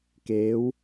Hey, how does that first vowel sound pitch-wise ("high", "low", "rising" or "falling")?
rising